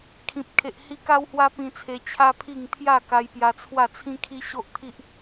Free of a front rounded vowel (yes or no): yes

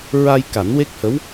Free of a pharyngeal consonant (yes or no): yes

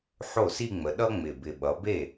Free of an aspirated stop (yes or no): yes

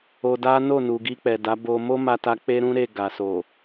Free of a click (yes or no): yes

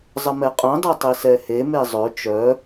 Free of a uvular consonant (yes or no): no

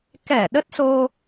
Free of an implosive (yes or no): no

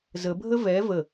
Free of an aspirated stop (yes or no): yes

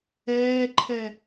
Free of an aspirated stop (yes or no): no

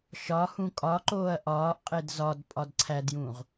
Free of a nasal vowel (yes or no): no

